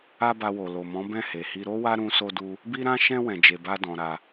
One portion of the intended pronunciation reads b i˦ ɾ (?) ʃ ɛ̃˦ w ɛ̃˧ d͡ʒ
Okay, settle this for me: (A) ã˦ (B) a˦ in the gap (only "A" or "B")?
A